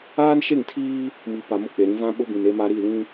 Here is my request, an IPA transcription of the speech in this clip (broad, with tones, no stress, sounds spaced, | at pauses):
aː˦ n ʃ e˦˨ ŋ tʰ iː˦ | m i˨ p a˨ m ʊ˦ k͡p e˨ ɾ ĩ˦ v ã˦ ɓ ʊ˦ b ĩ˨ n e˦ m a˦ ɾ i˦˨ l ĩ˦